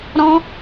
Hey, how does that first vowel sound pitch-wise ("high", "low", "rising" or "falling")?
high